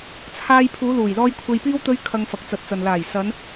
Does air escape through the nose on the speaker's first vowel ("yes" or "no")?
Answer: no